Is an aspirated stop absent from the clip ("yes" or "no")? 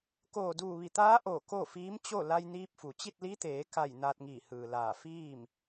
yes